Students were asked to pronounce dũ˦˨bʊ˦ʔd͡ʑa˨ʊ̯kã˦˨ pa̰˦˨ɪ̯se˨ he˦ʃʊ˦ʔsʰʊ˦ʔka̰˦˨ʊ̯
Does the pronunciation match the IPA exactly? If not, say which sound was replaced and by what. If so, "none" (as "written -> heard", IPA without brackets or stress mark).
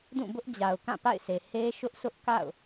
none